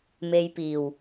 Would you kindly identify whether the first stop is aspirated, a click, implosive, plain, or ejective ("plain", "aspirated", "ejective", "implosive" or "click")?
plain